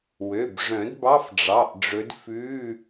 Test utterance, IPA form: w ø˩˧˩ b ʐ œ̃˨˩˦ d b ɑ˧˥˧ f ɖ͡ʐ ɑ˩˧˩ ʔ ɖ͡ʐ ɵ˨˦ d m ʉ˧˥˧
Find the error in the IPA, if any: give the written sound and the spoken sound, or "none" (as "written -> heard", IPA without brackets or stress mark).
m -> f